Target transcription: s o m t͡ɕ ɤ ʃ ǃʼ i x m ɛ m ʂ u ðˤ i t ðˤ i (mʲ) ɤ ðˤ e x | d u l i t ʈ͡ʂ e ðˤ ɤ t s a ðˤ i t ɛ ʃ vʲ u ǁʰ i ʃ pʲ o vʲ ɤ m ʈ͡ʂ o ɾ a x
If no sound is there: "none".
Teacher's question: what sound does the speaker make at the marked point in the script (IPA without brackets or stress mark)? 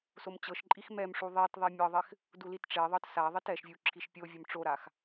mʲ